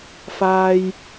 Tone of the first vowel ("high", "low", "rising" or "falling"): high